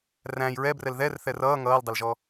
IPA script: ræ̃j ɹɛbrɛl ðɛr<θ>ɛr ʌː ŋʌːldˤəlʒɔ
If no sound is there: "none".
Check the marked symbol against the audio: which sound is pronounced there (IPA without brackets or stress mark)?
θ